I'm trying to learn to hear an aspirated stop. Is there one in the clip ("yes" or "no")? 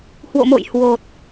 no